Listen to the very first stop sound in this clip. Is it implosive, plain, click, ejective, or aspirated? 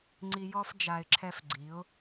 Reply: click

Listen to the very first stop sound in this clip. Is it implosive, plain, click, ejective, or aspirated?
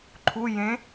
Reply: click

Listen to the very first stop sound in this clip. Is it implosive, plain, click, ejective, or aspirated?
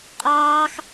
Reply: ejective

